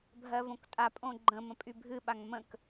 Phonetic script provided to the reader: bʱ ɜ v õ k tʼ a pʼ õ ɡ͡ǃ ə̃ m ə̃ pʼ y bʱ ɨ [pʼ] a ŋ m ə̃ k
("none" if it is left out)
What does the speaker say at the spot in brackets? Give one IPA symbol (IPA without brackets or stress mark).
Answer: ɓ